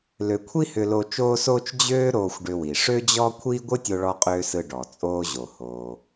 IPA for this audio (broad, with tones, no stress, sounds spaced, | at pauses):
l ø˧ kʷʰ i˥ h ʏ˧ l o˧ t͡ʃ oː˥ s oː˥ t͡ʃ d͡ʑ øː˥ ɾ oː˧ xʷ ɖ ʏ˧ w i˩ ʂ ø˥ d͡ʑ ɔ˥ kʷʰ iː˥ ɡʷ ɨ˥ tʲ o˧ ɭ ɔ˧ qʼ øː˧ s ɯ˧ ɖ ɔ˩ t͡sʼ oː˧ ʑ o˩ h oː˩